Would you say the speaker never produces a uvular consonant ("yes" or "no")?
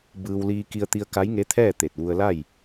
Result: yes